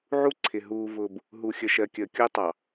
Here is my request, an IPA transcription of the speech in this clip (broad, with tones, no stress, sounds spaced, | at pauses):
ʕ u˦ ǀʰ ɪ˨ ɦ uː˨ v ʊː˨ b | ɦ u˨ xʲ ə˨ ʃ ɜ˨ kʲ əː˨ kʲ ʊː˦ tˤ ɑ˨